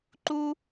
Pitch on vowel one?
high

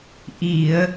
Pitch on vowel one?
low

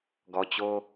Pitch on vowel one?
low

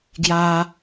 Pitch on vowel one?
high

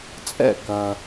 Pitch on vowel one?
falling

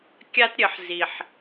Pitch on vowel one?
high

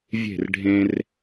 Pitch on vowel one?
falling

